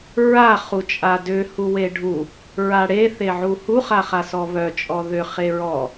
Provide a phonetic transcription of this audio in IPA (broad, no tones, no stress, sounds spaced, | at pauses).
ɹ a χ u t͡ʃʼ a d ʏ h u w e ɖʱ u | ɹ a ɽ e θ e ʕ u h u χ a χ a s ɔ β œ t͡ʃʼ ɔ ð ʏ χ e ɹ ɔ